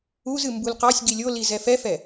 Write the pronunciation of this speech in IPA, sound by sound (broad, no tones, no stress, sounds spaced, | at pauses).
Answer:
u z ɨ m b u l q ɑ sʲ ɡ i lʲ o l i z ɛ f ɛ f ɛ